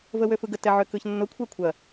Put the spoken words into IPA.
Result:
v ə w ø f ɯ ɡ ə t ɛ ʕ ø k ɯ ç nː ʊ kʷʰ ɛ kʷʰ ɐ

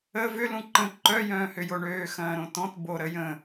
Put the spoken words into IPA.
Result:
ə v ʏ l ũ ǃ ə̃ ǃ œ j œ̃ː h ʏ j o ɳ øː x ɐ̃ː ɾ õ t ɔ̃ t b o ɾ ə j ə̃

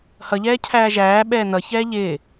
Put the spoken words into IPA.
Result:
h ʌ ʎ ɛː cʰ æː ʒ æː ɓ ɛː n ʌ ç ɛː ʎ ɪː

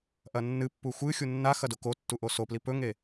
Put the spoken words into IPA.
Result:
ʔ ɐ nː ɨ pː u xʷ ɨ xʲ u nː a x ɐ d o k o tː u ʔ o s o p l i p ɵ ŋ e

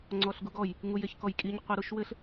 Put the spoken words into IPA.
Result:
ŋ͡ǀ ɔ ɬ ɡ u ɡ ɔ j | ŋ u j e ç k ɔ j kʼ i ɲ qʷ i ɾ u ʃ w ɘ ɬ

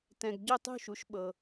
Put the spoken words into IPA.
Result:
t ɛ̃˨ ɡ ɟ o˥˧ tˤ ṳ˥˧ ʃ u˩˥ ʃ ɓ ɤ˨

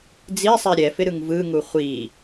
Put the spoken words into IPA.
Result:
d͡z i sˤ ɛ ɾʲ ɛ f ɪ ɾ ɯ ŋ v ɯ ŋ u χʷ i

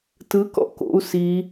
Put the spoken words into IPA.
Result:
t ɯ k ɔ̰ k o̰ u̯ s i

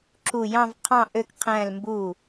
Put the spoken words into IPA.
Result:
ǁʰ u˧˩ j ɑ̃˥˨ v qʰ ɑ̃˥˨ ʔ ø˥˨ k qʰ æ̃˥˨ l m b u˧˩

